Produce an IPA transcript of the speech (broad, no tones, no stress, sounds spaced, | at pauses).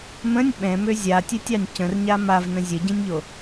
m ə̃ nʲ ɓ ɛ̃ m ø zʲ a tʲ ɛ tʲ ɑ nʲ c ə̃ r ɲ a m a v n ə̃ zʲ ə ɟ ĩ nʲ ʎ o